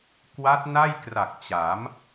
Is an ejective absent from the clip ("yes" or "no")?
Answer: yes